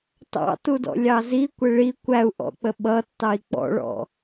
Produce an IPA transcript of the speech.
t ɑ̰ t u d ɔ̰ lʲ ɑ z i kʷ ɪ ɭ i kʷ æ u̯ ʔ ɔ̰ k͡p ə ɓ ʌ tː ɑ i̯ k͡p ɔ̰ ɭ ɔ̰

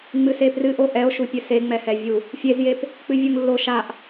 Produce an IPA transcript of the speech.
ŋ͡m ɨ s e p r ɨ ʔ o ʔ ɛ o̯ ʃ u pʲ ɨ s e ŋ͡m ɛ h ɛ vʲ u | fʲ e z j e p | k͡p ɨ vʲ u ŋ lː o ʃ a ʔ

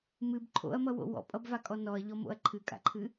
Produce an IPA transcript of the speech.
m ɨ b ǃʰ o̰ ɐ̯ m ʌ w o̰ w ɔ̰ pʼ ʌ b v a kʼ ɔ n ɔ ɐ̯ ʎ ɔ m o̰ ɐ̯ ǃʰ ɨ kʼ a̰ ǃʰ ɨ

